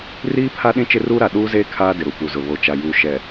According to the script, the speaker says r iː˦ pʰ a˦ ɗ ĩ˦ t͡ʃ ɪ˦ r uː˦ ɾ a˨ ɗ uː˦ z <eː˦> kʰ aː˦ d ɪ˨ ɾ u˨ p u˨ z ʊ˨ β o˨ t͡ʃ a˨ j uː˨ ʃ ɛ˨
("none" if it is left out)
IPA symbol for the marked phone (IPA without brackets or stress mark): eː˦